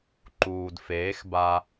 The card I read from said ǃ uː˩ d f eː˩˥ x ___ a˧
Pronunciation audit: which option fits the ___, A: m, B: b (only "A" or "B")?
B